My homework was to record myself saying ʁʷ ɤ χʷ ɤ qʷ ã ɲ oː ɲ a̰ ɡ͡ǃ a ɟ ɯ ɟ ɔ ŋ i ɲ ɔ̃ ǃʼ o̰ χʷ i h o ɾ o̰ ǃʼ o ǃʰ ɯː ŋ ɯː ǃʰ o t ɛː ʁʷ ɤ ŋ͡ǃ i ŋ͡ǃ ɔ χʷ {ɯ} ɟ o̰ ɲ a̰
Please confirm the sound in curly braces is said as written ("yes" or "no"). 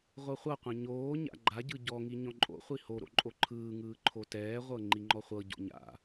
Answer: no